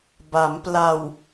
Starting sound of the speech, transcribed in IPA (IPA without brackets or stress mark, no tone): b